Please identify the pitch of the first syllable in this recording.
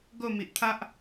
falling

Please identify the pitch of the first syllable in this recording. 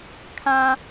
low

